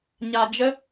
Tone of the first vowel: low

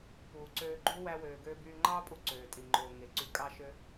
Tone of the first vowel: low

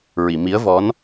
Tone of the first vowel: low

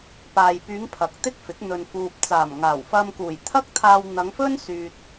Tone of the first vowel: low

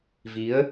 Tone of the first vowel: rising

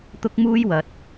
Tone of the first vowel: high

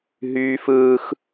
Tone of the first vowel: high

